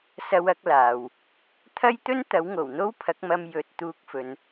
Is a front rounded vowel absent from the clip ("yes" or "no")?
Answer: yes